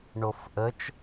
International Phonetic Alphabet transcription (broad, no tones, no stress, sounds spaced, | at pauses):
ɳ o f ʔ ə t͡ʃ